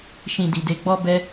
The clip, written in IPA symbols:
ʃ ĩ˨ d i˨ d e˨ ɡ͡b ɔ˧ b ɛ˦

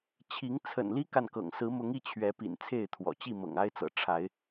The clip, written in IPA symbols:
t͡ɕʰ i˨˦ ŋ t͡sʰ ə̰˨˩ n l i˦ k a˨ n k ɤ̰˨˩ ŋ s ɹ̩˨˦ m ʊ˨˦ ŋ i˥˨ t͡ɕʰ ɥ ɛ˨˦ p ḭ˨˩ n t͡sʰ e˥˨ ɪ̯ t̪ʰ w ɔ̰˨˩ t͡ɕ i˥˨ m ɤ̰˨˩ ŋ a˦ ɪ̯ t͡s ɤ̰˨˩ ʈ͡ʂʰ a˨˦ ɪ̯

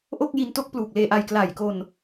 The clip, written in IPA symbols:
ʔ o˥˩ k̚ j i˧ n t o˥˩ k̚ p l uː˨˩ k̚ l eː˧ ʔ a˧ j k l a˨˩ j k o˧ n

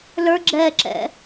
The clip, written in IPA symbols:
l ə˞ ɡ͡ǁ ɛː ǁ ɛ̰

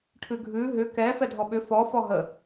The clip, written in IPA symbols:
ʈʰ ʉ ɡʱ ʉ ɦ ʏ k ɛ f ɛ dʱ ɔ ɓ ʏ f ɔ f ɔ ɦ ə

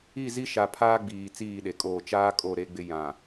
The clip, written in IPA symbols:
i˦˨ z i˦ ʃ a˨ pʰ aː˦ ɡ͡b iː˨ t͡s iː˦˨ ɗ e˨ kʼ oː˦˨ t͡ʃ aː˦ kʼ o˦˨ ɾ e˦ ɡ͡b ɪ˦ j ã˨

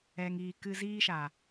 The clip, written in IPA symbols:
ɛ˨ ŋ iː˨ k ɨ˧ z iː˦ ʃ a˨

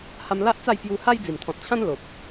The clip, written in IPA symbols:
h a˧ m l a˦ ʔ t͡s a˥˧ j p j u˧ h a˦ j d͡z i˨˩ m t̪ʰ ɔ̃˨ t̚ t͡ɕʰ ã˦ n l o˨ p̚

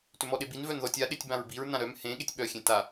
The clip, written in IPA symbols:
t ʏ m ɔ ɗ e b i n v œ n ð ɔ tʲ a ɗ e tʲ b ã ɹ b i ɹ n ã ɾ œ m h ẽ ɠ e tʲ ɓ œ xʲ ẽ t a

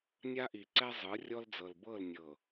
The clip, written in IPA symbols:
nʲ a˦ ʔ i˨ ǀ ɛ˦ zˤ ɯ˨˦ rʲ ɔ˦ l d͡z ɤ˨ l b ɤ˦˨ l nʲ ɤ˨

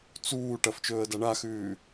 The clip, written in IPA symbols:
t͡s uː ʈ ɐ f t͡ʃ ɵː ə̯ d a ɳ a x ʉː

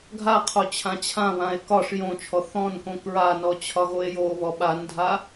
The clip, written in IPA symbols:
ɡʱ a qʰ o t͡ɕʰ ã t͡ɕʰ ã β ã e̯ k ɒ ʂ j õ t͡ʃʰ ɔ θ ɔ̃ n k õ k ɹ a n ɔ t͡ɕʰ ɒ ɣ o e̯ j o β ɔ ɓ a n dʱ a

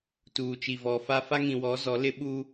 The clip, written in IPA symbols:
t uː˨ t͡ʃ i˨ v ɔ˨ f a˦ f a˦ ŋ ĩ˨ w ɔ˨˦ z ɔ˨˦ l ɪ˦ ɓ u˦

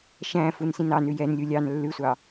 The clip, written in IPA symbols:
ʃ æ̃ f u n s ĩ n ɑ n ʉ j ɛ n lʲ u lʲ ɑ n lː ʉ sʷ ɑ

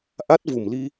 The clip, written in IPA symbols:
ʔ a˦˥ t̚ v u˨˩ m l i˧

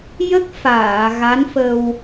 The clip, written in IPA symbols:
j ə˦˥ k̚ f aː˨˩˨ ɣ a˧˥ n f ə˧ w

